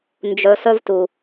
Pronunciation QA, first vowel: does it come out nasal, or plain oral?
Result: oral